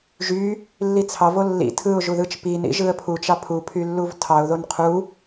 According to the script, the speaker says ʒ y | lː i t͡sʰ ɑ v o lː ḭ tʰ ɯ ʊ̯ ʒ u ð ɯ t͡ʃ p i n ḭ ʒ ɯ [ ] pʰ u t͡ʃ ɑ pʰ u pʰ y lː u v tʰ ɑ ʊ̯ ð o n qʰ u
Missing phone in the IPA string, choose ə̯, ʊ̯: ə̯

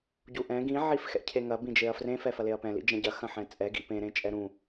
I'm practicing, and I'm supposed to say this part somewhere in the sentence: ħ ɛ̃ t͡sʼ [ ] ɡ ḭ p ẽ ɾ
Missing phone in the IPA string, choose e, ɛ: ɛ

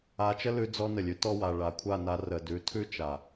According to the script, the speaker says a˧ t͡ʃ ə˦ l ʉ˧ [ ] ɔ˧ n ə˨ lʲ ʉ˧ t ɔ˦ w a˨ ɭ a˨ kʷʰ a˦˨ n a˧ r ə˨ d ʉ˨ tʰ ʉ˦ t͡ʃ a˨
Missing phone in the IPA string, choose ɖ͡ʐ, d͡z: d͡z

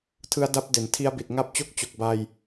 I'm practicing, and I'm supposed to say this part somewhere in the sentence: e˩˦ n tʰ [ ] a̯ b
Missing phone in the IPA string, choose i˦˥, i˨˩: i˦˥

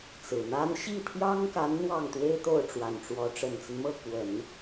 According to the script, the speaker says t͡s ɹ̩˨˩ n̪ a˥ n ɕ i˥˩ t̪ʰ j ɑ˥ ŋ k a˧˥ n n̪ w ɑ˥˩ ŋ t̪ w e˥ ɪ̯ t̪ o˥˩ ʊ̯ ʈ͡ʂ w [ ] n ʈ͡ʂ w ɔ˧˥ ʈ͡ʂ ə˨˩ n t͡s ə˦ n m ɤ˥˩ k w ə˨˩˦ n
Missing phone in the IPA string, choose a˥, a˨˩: a˨˩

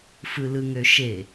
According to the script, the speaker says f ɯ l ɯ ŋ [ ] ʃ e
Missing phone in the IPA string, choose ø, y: ø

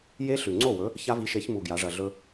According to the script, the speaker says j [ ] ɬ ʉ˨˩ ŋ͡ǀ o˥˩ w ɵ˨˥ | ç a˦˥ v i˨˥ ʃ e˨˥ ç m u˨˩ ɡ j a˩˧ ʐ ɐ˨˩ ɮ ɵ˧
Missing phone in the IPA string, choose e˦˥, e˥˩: e˦˥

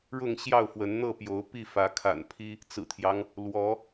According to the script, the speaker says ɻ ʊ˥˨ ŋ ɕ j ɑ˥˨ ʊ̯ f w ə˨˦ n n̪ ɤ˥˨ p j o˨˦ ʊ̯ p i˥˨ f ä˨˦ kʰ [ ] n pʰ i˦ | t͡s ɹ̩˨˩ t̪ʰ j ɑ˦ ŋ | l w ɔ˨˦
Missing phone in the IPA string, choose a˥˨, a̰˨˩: a̰˨˩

